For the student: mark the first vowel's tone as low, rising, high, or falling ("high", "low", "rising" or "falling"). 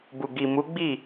low